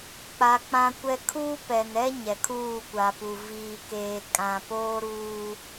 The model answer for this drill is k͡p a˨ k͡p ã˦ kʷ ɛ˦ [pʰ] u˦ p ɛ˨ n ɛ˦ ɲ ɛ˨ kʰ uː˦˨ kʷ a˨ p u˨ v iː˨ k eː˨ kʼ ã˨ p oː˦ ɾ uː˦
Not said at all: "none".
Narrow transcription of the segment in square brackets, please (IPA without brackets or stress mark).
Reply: kʰ